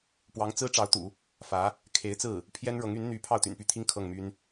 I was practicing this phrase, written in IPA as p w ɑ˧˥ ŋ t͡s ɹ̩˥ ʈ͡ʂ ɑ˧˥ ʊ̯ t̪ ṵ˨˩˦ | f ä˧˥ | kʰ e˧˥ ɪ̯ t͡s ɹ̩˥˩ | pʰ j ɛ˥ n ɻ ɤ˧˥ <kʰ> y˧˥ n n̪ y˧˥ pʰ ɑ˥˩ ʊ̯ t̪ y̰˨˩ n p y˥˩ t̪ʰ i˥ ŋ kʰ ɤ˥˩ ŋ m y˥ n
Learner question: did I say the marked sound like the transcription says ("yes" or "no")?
no